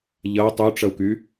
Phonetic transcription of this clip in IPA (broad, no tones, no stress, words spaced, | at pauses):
ʎɐ tˤøʈ͡ʂɐu̯ky